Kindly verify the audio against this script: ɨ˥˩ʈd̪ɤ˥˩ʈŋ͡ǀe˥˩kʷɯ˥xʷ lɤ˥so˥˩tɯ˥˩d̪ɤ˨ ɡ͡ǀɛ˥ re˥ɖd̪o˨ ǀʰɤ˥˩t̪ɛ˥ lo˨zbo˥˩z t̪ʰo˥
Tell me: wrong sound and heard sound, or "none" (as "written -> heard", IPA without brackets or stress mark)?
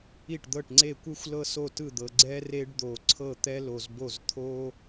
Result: ɨ˥˩ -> i˥˩